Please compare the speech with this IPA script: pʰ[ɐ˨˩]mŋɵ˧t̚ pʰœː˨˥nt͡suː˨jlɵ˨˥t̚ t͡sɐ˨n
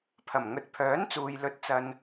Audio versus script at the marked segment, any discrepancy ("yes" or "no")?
no